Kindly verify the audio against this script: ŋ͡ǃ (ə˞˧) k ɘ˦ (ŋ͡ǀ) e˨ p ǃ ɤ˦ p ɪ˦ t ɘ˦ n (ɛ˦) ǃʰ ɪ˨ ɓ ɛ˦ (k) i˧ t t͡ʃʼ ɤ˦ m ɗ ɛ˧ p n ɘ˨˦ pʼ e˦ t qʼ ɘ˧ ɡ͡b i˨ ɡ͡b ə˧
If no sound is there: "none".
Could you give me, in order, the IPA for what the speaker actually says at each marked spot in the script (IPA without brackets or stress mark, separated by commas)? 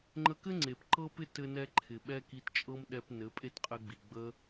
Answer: ə˧, ŋ͡ǀ, ɛ˦, k